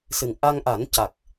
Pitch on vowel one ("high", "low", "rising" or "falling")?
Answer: low